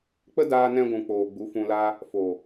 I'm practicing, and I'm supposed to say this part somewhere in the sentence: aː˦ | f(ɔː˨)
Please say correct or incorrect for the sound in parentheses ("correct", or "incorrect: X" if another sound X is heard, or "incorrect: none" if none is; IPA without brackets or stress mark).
incorrect: oː˨